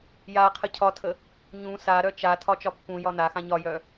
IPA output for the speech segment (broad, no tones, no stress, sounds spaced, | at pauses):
j a qʰ ə cʰ ɒ tʰ ə | ɲ ũ s a ɾ œ t͡ʃ a tʰ ɒ t͡ʃ ɒ pː ũ j ɒ n a x ã ɲ ɒ j œ